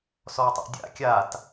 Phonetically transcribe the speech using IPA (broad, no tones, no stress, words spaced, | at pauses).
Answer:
sɔtˤṵdʲa̰ kʲat